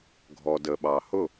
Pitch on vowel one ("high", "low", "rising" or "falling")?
low